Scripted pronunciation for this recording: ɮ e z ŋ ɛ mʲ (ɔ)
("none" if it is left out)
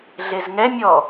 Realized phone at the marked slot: ɔ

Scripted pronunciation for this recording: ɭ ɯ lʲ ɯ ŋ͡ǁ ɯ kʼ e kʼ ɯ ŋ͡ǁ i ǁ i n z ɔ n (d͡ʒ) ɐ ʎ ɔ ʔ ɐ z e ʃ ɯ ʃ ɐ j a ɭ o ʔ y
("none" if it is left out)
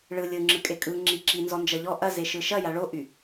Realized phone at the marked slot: d͡ʒ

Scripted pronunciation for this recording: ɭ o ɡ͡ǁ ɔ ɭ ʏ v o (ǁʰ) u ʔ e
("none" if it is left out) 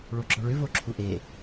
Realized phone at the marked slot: ǁʰ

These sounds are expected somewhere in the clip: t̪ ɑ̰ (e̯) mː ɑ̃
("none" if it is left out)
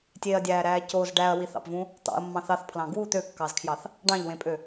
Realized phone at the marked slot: ɐ̯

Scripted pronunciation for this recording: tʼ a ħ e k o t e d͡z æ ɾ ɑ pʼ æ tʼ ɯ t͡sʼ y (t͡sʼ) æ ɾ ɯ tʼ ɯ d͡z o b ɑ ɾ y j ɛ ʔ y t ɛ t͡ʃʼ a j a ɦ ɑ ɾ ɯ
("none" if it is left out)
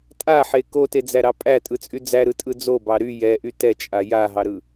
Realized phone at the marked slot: d͡z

